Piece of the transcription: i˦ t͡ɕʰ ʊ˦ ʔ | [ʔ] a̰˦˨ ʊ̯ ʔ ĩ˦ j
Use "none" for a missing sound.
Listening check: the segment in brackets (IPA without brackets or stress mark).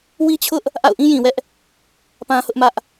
ʔ